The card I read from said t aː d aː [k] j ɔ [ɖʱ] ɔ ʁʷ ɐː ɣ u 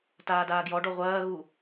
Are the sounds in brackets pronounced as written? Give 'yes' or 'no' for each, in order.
no, no

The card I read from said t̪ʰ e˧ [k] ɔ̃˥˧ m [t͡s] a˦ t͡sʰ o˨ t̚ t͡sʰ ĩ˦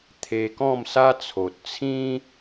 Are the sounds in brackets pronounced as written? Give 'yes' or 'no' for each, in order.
yes, no

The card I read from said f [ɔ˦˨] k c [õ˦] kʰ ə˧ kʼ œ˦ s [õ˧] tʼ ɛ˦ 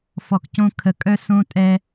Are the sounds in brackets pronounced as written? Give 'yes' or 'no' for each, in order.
no, yes, no

